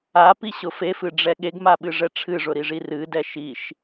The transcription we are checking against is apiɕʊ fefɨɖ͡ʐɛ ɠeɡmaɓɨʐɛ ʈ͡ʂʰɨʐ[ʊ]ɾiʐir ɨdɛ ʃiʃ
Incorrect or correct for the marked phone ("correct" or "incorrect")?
correct